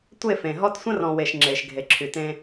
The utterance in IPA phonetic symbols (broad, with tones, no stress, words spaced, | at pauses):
tʷe˦˨fẽ˨ ɦɔ˦t sʷə̃˦rɔ̃˨we˨ʃ ŋ͡ǁe˨ʃ ɡʱe˨ǁʰy˨tẽ˦